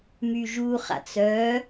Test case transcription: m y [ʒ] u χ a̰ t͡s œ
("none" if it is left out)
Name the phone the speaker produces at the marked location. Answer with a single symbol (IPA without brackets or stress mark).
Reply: ʒ